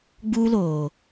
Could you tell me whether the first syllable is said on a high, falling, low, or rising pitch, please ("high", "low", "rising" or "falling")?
high